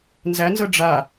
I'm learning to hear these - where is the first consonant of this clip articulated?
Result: tongue tip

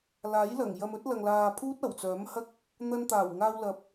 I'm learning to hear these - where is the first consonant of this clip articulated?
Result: tongue tip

